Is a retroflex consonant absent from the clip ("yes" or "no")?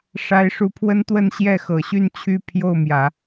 no